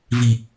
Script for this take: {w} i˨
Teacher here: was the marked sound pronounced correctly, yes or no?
no